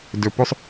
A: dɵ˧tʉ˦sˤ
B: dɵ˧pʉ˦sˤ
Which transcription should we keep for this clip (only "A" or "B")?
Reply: B